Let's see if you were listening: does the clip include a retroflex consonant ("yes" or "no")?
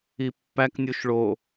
yes